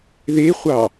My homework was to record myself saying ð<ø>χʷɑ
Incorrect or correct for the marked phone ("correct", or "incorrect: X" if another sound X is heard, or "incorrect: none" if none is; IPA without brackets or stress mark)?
incorrect: e